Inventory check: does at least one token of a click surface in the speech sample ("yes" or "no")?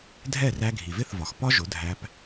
no